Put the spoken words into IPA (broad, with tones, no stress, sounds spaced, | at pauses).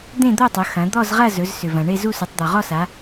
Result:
d̪ ẽ˥˧ d̪ o˥˧ tˤ ɵ˩˧ x ɐ̃˩˧ d̪ ɔ˥˧ z ʁ ɐ˥˧ z ɵ˩˧ z s ʏ˩ v ɐ̃˩ ɳ e˥˧ z u˥˧ s u˩˧ tˤ d̪ ɔ˩ ʁ ɔ˥˧ s a˩˧